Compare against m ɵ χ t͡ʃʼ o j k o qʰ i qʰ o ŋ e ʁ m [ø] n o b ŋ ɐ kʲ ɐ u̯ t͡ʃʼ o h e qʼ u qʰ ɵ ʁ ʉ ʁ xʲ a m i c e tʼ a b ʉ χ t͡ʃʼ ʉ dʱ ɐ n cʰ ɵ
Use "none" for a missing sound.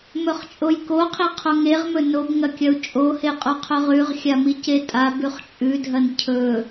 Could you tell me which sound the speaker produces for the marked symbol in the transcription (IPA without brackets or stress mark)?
ɵ